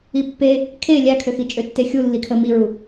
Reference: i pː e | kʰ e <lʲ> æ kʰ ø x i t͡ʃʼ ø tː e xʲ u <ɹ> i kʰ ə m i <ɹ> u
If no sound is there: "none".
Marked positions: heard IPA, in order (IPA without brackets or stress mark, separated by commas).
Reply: lʲ, lː, ɹ